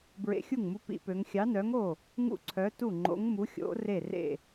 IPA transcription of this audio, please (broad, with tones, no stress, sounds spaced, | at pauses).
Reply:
b ɹ ḛ˧˥ xʲ u˥˨ ŋ m u˧˥ p ḭ˧˥ p ø˧˥ ŋ xʲ ɑ˧˥ n œ˧˥ ŋ o˥˨ | ŋ ṵ˥˨ ǀʰ œ˧˥ t u˥˨ ŋ͡ǃ o̰˧˥ ŋ m u˧˥ xʲ o̰˧˥ r e˥˨ r ḛ˥˨